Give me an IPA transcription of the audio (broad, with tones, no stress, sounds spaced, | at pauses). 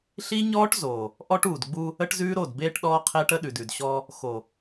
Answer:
ɬ i˦ ɲ ɔː˦ ʈ z oː˨ | ʔ ɔ˦ ʈ uː˨ d ɡ͡b u˦ | ə˦ ʈ z ʉː˦ ɾ o˦˨ d b eː˦ ʈ ɗ ɔː˦ qʰ eː˦ ʈ ə˦ ɗ ʉ˨ d ʉ˨ d ɕ ɔː˦ | x o˨